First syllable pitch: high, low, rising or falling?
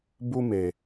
high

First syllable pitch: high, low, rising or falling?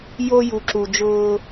high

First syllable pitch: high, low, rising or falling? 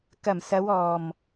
low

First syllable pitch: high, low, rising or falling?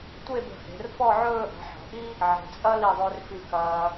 falling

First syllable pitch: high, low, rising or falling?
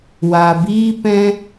low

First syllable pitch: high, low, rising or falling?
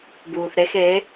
low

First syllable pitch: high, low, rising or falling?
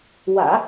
low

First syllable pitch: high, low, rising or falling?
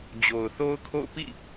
low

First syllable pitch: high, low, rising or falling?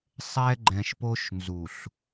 high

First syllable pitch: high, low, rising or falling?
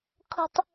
high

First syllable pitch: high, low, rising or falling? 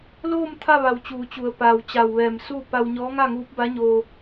falling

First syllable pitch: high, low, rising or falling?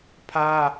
high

